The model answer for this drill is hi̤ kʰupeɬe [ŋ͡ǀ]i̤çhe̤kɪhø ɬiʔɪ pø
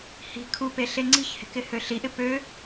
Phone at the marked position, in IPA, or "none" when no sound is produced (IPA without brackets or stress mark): ŋ͡ǀ